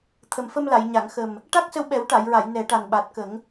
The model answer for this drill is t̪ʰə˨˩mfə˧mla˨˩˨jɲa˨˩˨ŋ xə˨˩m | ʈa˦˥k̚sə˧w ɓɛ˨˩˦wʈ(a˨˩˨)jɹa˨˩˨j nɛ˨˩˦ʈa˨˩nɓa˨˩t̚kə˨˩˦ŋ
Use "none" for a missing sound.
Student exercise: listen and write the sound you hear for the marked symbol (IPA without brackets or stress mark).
a˨˩˨